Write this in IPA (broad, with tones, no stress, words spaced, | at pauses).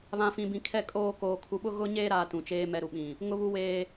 βã˨fĩ˨bĩ˨ kʰɛ˨kʼoː˨ koː˨kʰu˨ɓʊ˦ ɣʊ˦ ɲeː˦ɾaː˨ tũ˨t͡ʃeː˦ mɛ˨ɾu˨ɓĩ˨ | ŋʊ˦βu˦weː˦